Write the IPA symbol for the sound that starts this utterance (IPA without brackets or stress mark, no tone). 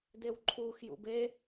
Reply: d